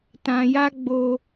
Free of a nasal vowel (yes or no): no